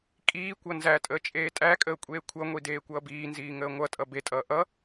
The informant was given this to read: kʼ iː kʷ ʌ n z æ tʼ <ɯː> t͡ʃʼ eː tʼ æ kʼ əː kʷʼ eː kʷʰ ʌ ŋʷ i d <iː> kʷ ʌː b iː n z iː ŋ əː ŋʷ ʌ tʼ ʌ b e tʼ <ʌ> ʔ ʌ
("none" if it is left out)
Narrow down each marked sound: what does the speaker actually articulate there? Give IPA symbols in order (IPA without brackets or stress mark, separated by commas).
əː, eː, ʌː